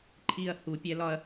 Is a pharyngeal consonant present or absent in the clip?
absent